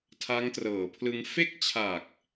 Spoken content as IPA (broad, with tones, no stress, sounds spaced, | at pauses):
tʰ a˦˥ ŋ t r ɤː˩˦ pʰ l ɯ˧ ŋ f e˥˩ k̚ t͡ɕʰ a˨˩ k̚